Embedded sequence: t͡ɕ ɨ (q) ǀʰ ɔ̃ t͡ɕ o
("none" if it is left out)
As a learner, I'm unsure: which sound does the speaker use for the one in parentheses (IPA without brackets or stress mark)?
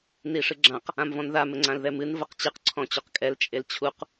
q